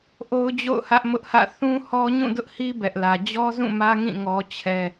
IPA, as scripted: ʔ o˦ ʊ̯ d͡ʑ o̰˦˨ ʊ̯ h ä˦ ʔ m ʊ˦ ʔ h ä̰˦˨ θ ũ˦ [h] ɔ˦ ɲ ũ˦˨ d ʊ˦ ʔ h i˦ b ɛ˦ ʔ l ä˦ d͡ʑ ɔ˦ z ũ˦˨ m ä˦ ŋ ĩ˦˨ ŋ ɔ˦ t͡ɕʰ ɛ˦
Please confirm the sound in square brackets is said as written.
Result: yes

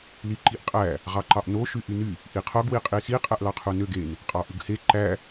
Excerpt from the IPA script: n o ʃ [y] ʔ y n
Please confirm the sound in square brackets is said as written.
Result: yes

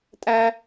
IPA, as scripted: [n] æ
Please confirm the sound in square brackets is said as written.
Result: no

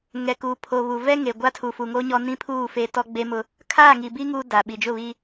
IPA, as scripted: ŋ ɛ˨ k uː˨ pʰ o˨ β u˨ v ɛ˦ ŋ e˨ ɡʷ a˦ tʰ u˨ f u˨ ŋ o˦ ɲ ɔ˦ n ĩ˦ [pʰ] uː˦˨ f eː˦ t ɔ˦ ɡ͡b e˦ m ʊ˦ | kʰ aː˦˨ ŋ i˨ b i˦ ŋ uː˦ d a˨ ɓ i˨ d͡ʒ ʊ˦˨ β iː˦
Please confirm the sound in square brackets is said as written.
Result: yes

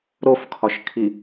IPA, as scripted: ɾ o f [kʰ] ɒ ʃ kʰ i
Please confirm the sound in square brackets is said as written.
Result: yes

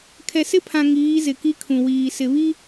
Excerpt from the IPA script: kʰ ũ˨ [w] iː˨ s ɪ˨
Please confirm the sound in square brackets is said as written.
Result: yes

